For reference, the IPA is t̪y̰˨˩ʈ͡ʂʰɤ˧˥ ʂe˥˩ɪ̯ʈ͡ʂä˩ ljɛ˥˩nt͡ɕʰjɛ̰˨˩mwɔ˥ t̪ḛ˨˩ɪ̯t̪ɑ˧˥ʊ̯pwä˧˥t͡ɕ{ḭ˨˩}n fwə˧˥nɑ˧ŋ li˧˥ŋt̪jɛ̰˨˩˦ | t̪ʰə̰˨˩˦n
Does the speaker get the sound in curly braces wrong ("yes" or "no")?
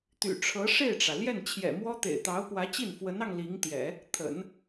yes